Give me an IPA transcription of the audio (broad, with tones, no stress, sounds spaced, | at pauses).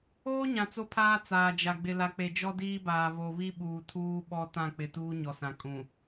oː˦ ɲ ã˨ t͡s o˦ pʰ aː˦ t͡s aː˨ d͡ʒ a˨ ɡ͡b ɪ˨ l a˨ k͡p e˨ d͡ʒ ɔ˦ d iː˦ b aː˨ β o˨ β i˦ ɓ uː˨ tʰ uː˦ ɓ ɔ˦ t ã˦˨ k͡p ɪ˨ t uː˦ ɲ ɔ˨ s ã˨ kʼ ũ˨